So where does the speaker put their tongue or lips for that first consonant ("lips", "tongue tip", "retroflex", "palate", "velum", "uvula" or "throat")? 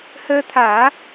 throat